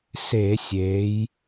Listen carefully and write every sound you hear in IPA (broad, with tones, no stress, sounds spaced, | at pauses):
s e˧˩˧ sʲ eː˩˧ j